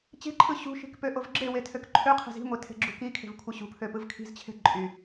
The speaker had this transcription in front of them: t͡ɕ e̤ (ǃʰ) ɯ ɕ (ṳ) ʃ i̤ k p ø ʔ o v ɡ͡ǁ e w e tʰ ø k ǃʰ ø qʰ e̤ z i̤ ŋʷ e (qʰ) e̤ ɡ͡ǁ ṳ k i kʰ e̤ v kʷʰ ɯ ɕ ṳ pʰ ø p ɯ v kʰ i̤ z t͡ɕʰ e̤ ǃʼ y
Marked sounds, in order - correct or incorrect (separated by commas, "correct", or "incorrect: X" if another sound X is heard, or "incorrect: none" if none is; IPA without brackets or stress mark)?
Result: correct, correct, incorrect: tʰ